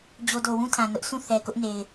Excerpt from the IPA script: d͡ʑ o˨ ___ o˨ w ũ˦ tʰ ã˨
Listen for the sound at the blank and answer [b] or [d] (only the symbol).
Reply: d